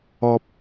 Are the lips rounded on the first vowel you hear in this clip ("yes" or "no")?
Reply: yes